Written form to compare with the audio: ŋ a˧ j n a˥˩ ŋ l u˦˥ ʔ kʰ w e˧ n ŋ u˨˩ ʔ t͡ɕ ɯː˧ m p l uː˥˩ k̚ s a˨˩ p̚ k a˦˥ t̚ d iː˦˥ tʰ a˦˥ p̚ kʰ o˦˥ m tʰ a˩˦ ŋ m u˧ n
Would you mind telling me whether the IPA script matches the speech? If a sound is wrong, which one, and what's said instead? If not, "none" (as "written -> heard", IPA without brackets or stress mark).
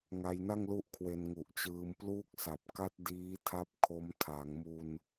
none